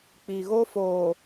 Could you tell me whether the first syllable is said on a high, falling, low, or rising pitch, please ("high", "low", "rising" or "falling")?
low